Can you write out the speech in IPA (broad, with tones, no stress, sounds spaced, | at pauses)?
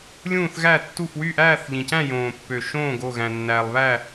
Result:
lʲ ũː˦˨ θ ɣ æ˦˨ tː u˦˨ f w y˦˨ ʔ æː˦˨ θ ʎ ĩ˨ c æ̃˦˨ j õː˨ pː ø˨ ʃ õː˦˨ ɡ o˦˨ ɣ æ̃˨ nː æː˨ lˠ β æ˦˨